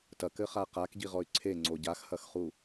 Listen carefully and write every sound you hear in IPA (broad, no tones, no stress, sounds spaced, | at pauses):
t ɐ k ɘ χ a q a k ɟ i ʁ ɔ y̯ ǀʰ e ŋ͡ǀ o ɟ a x h ɐ x χ u